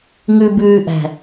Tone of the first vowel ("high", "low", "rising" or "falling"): low